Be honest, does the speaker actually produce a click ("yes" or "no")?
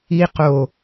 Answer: no